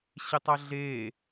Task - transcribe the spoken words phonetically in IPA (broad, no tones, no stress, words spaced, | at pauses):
ɕɪtˤɐɮeː